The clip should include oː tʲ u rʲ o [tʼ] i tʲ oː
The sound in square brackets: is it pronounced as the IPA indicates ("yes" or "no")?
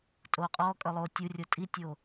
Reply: yes